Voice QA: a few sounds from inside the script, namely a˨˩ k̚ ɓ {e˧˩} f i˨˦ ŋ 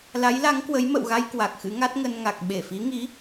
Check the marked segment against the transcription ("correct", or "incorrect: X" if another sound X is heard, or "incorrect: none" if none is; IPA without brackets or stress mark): correct